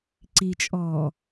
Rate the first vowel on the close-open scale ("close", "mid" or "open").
close